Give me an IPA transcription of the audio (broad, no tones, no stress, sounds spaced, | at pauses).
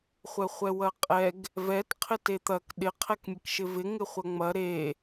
χʷ ɛ χʷ ɛ w ɐ qʼ ɛ ɡ | v ɛ t qʰ ɪ t e t̪ ɐ k ɗ ɪ qʰ ɛ k mʲ ɛ k ʃ ɪ v ɪ ŋ ɪ χʷ ɐ ŋ͡m ɐ ɾ e